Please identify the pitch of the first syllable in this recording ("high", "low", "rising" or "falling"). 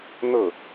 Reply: falling